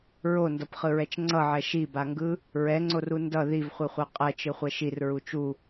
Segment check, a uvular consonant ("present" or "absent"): present